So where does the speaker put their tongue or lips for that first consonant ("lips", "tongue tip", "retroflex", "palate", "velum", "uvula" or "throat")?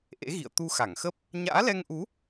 throat